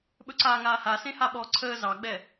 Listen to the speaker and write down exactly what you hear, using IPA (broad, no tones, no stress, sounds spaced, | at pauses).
ɓ ɵ ǀ aː ŋ aː h a s ẽ h a ɓ ɔ ǀʰ əː z ɑ ɡ͡b ɛ